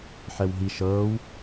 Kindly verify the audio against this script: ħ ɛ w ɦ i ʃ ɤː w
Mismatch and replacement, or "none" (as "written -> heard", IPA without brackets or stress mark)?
none